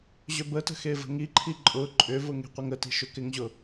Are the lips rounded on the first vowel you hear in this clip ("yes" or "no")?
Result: yes